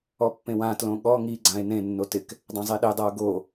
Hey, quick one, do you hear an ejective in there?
no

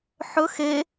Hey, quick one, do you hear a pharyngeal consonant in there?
yes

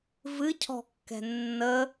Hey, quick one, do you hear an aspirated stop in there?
yes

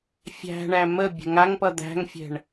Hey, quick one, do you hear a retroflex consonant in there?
yes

